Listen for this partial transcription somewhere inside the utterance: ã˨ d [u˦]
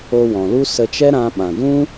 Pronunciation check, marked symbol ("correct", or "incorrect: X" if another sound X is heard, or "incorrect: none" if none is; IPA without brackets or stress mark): incorrect: ũ˦